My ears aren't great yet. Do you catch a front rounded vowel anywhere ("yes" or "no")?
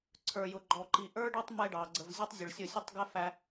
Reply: no